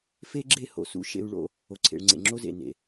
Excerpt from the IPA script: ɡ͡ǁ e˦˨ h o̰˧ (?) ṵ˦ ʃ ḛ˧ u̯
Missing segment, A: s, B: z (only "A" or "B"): A